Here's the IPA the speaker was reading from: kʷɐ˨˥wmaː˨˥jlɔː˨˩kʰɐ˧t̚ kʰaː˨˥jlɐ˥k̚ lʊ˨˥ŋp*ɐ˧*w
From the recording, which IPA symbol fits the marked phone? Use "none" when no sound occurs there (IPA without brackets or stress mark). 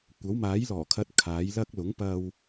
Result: ɐ˧